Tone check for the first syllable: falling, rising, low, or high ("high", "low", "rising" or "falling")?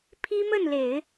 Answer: high